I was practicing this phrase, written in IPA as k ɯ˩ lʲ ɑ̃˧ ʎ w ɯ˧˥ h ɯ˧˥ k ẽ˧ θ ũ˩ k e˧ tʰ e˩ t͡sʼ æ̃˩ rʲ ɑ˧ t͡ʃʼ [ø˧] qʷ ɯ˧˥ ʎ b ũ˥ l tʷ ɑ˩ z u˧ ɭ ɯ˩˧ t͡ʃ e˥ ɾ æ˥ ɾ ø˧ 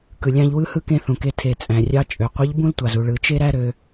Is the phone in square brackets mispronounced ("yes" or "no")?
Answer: yes